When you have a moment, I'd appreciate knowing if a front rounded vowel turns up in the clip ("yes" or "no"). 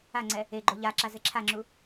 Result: no